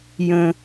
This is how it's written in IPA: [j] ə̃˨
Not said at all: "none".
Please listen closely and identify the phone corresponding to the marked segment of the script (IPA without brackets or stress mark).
j